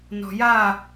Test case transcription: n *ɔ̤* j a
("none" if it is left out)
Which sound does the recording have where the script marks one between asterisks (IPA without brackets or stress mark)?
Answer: ɔ̤